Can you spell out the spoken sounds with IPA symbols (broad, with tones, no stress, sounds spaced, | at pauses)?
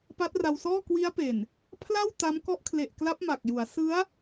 p a˦˥ t̚ r a˧ w s ɔː˥˩ k w i˦˥ a̯ p e˨˩ n | pʰ l a˥˩ w t a˦˥ m k ɔ˦˥ ʔ kʰ l e˨˩ ʔ k l a˦˥ p̚ m a˨˩ k̚ j u˩˦ a̯ s ɯ˦˥ a̯